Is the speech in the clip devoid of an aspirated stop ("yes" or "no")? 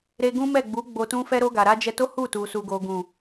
yes